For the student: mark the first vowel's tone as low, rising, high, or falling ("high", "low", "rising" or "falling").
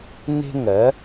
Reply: high